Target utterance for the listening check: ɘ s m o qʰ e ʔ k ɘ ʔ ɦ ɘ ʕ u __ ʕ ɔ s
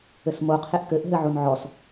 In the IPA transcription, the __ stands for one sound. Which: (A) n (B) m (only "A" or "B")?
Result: A